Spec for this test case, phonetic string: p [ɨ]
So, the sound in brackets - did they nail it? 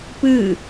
yes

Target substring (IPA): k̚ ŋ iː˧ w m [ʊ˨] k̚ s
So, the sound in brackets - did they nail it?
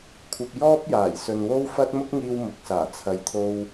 yes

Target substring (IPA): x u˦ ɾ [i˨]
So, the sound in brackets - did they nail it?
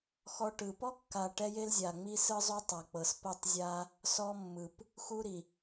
yes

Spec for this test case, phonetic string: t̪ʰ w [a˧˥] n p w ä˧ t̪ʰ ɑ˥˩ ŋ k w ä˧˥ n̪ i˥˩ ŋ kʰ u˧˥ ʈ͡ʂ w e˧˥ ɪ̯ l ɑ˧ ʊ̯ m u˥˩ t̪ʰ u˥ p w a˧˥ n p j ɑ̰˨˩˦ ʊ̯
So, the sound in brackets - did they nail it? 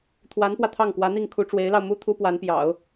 yes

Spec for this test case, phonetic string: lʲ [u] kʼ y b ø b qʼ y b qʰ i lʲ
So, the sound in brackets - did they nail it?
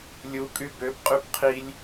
yes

